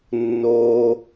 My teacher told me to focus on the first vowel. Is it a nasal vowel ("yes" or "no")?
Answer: no